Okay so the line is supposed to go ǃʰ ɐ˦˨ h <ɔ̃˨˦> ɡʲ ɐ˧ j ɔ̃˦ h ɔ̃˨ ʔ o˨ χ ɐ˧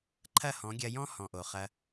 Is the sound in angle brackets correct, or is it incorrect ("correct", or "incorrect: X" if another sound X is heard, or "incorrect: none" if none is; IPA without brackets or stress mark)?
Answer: correct